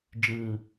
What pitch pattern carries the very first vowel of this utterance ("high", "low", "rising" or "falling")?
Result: low